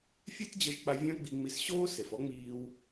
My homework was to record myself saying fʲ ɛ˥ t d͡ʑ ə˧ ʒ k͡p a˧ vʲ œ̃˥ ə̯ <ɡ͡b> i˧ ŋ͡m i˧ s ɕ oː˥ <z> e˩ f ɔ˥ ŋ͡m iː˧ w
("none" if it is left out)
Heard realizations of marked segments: ɡ͡b, s

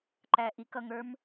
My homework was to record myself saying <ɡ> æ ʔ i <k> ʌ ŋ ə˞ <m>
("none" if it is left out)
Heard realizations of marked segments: ǃ, k, m

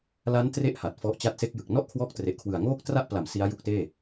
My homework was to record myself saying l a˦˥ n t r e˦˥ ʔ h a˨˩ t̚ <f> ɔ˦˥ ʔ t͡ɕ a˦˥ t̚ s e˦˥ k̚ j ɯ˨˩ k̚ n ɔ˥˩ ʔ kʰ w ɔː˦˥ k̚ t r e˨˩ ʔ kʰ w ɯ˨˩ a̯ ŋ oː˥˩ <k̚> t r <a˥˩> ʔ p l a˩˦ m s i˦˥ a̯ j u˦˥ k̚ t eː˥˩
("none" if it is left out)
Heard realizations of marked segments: f, k̚, a˥˩

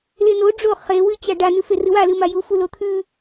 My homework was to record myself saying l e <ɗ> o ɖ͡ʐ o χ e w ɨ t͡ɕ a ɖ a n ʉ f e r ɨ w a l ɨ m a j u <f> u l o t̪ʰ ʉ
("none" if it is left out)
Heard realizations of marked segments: n, f

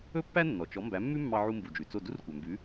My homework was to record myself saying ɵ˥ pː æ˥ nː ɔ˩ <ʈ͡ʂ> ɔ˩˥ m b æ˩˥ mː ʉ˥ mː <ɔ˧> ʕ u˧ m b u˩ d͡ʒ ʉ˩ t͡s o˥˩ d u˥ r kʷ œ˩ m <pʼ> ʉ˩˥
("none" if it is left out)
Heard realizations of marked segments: t͡ʃ, ɑ˧, b

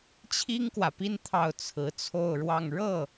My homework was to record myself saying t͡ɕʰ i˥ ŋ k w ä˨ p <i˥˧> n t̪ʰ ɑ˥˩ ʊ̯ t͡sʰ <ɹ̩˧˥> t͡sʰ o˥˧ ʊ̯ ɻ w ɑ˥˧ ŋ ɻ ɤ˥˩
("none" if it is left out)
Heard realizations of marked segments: i˥˧, ɹ̩˧˥

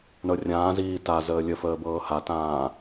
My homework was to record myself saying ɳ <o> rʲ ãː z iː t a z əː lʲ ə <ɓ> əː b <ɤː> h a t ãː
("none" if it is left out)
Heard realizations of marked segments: ɤ, f, ɤː

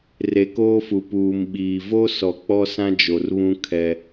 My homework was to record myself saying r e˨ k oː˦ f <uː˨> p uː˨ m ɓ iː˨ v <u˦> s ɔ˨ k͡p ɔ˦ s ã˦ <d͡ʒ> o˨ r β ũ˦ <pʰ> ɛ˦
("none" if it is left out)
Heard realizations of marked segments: u˨, o˦, d͡ʒ, kʰ

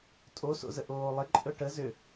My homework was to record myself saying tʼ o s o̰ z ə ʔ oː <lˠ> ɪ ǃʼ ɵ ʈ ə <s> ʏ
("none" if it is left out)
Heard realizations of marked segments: lˠ, z

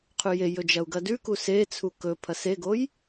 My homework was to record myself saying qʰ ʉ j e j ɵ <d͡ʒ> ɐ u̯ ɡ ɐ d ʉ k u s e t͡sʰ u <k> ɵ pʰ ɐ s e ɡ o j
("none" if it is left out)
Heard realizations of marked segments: d͡ʒ, k

